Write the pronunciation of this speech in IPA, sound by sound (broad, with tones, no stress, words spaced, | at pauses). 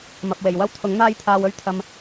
mɐ˨p̚we˨˩jwɐ˥wt̪ʰʊ˨˥ŋ n̪aː˥jt̪ʰaː˧wɵ˥ɥt̪ʰɐ˧m